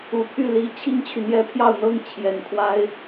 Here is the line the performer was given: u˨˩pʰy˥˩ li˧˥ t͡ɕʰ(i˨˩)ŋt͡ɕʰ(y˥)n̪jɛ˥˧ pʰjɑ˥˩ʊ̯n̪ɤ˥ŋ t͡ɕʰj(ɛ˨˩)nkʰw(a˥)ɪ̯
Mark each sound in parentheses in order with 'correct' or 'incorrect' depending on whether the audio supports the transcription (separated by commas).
incorrect, incorrect, correct, correct